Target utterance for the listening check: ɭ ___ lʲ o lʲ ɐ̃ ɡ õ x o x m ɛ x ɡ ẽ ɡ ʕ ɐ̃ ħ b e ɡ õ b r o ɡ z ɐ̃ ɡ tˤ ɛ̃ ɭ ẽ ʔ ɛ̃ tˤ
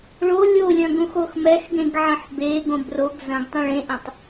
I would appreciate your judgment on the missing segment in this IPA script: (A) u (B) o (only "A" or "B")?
B